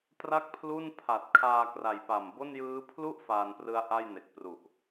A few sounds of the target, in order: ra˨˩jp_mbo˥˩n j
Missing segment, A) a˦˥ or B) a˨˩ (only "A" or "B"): B